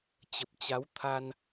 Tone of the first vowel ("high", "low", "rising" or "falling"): low